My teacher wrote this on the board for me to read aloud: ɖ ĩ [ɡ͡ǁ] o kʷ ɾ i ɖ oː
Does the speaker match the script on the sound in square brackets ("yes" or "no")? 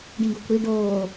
no